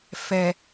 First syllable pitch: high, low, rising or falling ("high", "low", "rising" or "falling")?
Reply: low